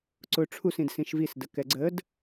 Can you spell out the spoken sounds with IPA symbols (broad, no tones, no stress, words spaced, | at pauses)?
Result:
ǀʊ ʈ͡ʂʰusĩd sĩʃvisdə kɛɡ͡ǀəːd